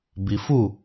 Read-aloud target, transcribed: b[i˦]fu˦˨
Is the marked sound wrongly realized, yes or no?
yes